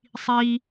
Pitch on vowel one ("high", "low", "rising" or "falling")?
high